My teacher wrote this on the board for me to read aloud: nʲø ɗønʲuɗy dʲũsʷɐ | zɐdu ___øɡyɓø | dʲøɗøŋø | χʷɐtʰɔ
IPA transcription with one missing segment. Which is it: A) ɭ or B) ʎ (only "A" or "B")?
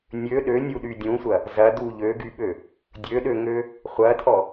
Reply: B